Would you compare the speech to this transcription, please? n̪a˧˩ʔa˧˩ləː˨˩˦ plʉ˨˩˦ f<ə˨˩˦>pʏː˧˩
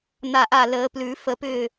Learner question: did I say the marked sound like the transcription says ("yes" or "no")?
yes